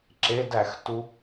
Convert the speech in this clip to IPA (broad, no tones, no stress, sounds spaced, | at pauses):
ǁ e d æ x t u